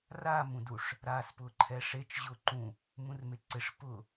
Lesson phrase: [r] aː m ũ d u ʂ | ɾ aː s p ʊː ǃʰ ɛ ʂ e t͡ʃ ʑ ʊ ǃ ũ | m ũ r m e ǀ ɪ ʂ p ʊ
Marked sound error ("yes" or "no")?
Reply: no